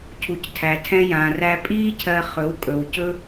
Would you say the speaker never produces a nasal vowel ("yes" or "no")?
no